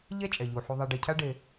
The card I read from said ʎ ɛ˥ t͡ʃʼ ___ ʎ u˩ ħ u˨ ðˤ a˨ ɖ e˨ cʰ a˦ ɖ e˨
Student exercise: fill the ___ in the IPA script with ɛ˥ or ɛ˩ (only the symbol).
ɛ˩